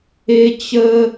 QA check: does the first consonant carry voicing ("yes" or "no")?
no